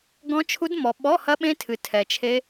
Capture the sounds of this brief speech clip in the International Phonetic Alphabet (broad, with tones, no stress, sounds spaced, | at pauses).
ɡ ɔ̃˦˥ t͡ʃʰ u˦˥ d m ɔ˨ ɓ ɔ˧˥˧ h ɐ˦˥ ɓ ẽ˦˥ tʰ ɨ˨ tʰ ɛ˨ t͡ʃʰ e˦˥